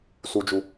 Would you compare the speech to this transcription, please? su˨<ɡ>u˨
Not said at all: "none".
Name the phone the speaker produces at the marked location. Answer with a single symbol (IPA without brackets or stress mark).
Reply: d͡ʒ